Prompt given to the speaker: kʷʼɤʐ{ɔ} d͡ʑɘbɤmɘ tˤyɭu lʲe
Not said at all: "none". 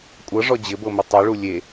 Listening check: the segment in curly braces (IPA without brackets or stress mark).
ɔ